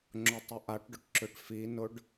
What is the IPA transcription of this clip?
ŋ͡ǁʊtˤʏʔaʈɖʊʈ ǁʏʈfinʊɖ

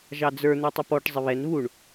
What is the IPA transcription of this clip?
ʒɑd͡zə˞ n̪ɛtˤɪpɔʈ zˤɪβɛn βuɳ

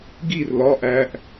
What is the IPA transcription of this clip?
ɡir lɒ ʔæʔ

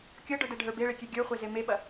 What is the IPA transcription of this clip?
kʲɤɖə˞dɛɖʱə˞ beɭekʲe ɡʲə˞χʷeze meɓɐ

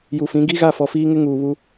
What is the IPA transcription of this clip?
ju˨fĩ˨˦ ɡi˦ɣa˦˨ fɔ˨fiː˦ŋɪ˦ ŋuː˨βu˦

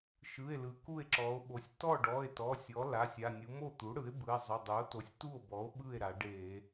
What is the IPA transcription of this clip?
ʃɯ˩˧˩e̯lɯ˩˧ ku˥˩e̯ǁɔ˩˧o̯ɓo˩˧sʲ tɔ˥˩ɖɔ˩˧˩e̯tɔ˩˧˩ sʲɔ˩˥la˩˧˩sʲ a˩˧˩nʲu˩˥ mo˥˩t̪u˩˥ɽɯ˩˥e̯ bɯ˩˧˩e̯zˤu˩˧˩dˤɯ˩˥o̯ to˩˥sʲtu˥˩o̯bɔ˩˥o̯ ɓɯ˥˩e̯ɾa˩˧ɖe˧˩˧

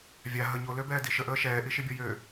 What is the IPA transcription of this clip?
vʲa ɦə ɲoløbɛːdi ʃəʔəː ʃɛːʔiʃibʲɔ jø

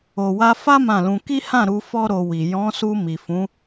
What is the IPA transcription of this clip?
o˨wa˧ fa˦ mã˦˨lũ˧ ki˦hã˦˨ ɾu˧fɔ˦ ɾo˧wi˨ jɔ̃˨˦su˧ mi˨fũ˨˦

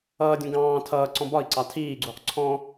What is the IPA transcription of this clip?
ʌːdʲũ ɡɑ̃ː tʰʌː ǀɔ̃bɒi̯ǀɑ tʰiːɡ͡ǀuːq ǀʰɔ̃

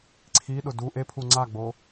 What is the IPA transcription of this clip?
ǀʰiɗʊ du ʔepʰu ŋ͡ǀaɡ͡bo

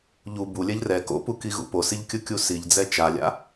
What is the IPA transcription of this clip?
ʎu bulʲɛʎ rɛ ko̰pukiɣṵ posiʎkʲɯkʲu siʎd͡zɛ t͡ʃalʲa̰

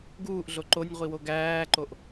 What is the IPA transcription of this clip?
ɡuːʔɮo ǃonʲʁʷiwo ɡæːǃoʔ

